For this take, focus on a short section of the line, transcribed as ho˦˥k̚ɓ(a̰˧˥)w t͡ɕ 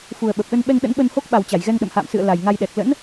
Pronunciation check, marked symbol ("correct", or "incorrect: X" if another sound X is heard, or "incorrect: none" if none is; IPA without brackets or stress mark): incorrect: a˨˩